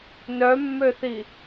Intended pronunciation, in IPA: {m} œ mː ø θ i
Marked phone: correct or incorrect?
incorrect: n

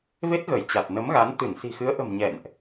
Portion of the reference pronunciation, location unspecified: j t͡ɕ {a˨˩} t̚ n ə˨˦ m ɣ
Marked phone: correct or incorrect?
correct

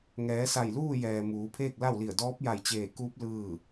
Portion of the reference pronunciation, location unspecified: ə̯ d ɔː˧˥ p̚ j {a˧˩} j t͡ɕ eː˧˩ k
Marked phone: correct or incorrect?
correct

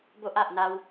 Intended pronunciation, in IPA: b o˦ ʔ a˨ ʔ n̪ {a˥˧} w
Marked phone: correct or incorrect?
incorrect: a˧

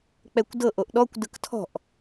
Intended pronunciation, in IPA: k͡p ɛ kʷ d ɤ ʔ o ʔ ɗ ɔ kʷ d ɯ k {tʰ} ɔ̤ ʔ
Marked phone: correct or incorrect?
correct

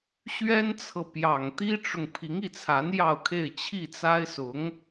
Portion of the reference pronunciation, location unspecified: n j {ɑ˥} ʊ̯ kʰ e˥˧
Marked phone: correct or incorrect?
incorrect: ɑ˥˧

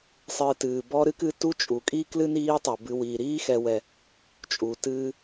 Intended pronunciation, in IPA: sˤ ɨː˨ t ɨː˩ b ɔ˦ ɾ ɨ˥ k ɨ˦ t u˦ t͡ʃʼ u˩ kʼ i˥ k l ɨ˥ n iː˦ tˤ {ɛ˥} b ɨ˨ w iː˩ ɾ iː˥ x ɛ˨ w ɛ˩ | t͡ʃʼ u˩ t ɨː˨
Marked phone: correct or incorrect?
incorrect: ɛ˩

